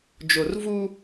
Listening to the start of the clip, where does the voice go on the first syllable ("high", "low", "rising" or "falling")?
low